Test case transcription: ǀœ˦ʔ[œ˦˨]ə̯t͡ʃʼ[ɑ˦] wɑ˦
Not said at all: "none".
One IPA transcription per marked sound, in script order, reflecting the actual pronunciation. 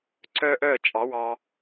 œ˦˨, ɑ˨˦

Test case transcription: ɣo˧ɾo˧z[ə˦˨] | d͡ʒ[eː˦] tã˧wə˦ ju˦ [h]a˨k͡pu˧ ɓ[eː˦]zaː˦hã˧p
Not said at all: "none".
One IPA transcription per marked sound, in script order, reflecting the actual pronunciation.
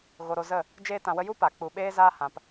ə˦˨, eː˦, p, eː˦

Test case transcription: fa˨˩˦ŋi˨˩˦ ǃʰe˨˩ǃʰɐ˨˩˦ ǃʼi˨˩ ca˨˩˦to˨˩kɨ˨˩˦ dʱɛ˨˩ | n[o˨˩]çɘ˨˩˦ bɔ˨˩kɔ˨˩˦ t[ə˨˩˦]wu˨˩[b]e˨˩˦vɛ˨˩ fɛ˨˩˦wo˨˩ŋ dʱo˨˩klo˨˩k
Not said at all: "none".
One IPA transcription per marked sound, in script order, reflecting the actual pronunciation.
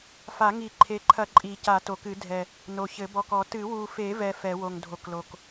o˨˩, ɨ˨˩˦, f

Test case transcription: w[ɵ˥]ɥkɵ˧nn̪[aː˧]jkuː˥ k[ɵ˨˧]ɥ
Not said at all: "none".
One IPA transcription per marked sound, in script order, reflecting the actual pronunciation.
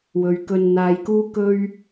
ɵ˨˧, aː˧, ɵ˥

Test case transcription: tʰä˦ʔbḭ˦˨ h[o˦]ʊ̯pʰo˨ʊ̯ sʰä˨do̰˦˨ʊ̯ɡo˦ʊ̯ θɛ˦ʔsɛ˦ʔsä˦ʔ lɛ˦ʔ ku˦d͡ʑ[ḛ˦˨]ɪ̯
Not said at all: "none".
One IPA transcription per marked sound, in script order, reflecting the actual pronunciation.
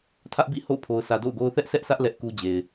o̰˦˨, e˨

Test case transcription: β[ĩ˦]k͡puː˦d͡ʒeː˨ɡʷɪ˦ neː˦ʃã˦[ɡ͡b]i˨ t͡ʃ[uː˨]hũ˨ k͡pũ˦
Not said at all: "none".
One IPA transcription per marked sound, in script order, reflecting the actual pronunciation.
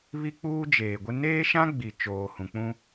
i˦, ɡ͡b, oː˨

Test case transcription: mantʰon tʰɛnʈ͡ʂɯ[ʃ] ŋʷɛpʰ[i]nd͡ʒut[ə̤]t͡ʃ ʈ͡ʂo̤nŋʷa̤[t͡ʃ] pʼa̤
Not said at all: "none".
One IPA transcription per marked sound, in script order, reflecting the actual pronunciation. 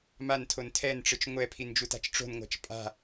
t͡ʃ, i, a̤, t͡ʃ

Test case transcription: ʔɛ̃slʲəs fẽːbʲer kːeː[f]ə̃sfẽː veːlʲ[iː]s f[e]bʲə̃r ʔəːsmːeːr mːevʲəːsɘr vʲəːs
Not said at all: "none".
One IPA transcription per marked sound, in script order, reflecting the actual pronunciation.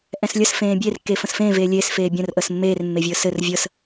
f, eː, eː

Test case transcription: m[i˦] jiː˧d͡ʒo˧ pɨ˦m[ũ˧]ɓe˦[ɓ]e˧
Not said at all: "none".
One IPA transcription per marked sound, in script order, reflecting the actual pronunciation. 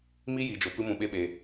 i˦, ũ˧, ɓ

